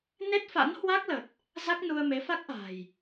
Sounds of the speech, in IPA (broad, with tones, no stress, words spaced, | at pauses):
ne˦˥t̚fa̰˧˥nhwa˦˥k̚lə˨˩t̚ | za˦˥k̚nu˧ə̯me˨˦ fa˦˥k̚ʔa̤˨˩j